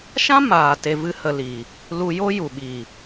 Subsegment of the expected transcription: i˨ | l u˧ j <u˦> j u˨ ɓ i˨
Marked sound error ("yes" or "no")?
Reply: yes